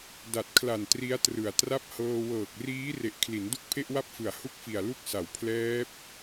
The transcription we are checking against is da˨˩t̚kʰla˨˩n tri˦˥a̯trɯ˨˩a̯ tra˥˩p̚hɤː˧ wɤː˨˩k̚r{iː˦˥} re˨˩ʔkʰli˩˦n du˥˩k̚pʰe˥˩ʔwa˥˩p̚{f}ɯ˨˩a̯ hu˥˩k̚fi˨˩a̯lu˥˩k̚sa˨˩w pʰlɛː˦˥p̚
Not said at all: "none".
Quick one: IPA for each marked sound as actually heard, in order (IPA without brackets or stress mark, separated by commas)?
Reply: iː˦˥, f